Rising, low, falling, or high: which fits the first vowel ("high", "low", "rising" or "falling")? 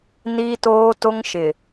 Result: high